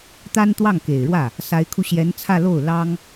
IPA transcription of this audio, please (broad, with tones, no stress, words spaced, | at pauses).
t̪a˥nt̪wɑ˥˩ŋ ke˨˩ɪ̯ɻwä˥˩ | sa˧˥ɪ̯kʰu˧ɕjɛ˧˥nt͡sʰä˥˧ lo˥˩ʊ̯ lɑ˥ŋ